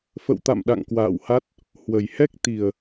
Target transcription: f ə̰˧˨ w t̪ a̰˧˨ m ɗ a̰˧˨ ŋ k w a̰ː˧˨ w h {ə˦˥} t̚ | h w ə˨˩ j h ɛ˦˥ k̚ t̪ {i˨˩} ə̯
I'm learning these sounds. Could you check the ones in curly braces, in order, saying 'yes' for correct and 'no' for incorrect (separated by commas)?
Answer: no, yes